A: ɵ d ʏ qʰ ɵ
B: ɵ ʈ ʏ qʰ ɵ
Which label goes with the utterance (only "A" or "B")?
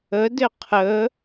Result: A